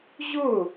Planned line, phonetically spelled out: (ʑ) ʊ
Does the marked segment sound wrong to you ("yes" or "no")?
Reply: no